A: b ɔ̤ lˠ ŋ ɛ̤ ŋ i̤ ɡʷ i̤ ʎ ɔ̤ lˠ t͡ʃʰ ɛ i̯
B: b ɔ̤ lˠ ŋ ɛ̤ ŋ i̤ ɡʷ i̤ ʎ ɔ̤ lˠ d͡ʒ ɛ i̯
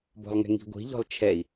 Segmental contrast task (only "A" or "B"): A